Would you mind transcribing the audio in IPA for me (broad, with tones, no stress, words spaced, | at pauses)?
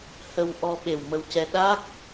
hə˧wʔɔ˧ ɓe˨˩wmə˧wcɛ˧ ɗa˦˥k̚